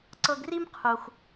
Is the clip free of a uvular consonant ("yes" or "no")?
no